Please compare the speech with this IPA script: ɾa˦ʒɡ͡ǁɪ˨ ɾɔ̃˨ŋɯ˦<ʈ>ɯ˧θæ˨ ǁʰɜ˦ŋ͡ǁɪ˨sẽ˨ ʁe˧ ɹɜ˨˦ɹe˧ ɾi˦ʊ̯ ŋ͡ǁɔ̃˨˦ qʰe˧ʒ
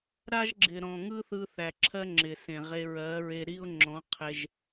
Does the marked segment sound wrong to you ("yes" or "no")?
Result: yes